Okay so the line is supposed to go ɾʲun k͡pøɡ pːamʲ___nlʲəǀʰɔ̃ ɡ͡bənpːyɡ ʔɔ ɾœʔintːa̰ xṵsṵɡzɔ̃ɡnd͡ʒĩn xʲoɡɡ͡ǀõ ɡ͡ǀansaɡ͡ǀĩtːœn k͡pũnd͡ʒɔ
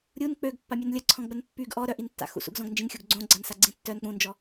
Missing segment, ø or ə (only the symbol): ø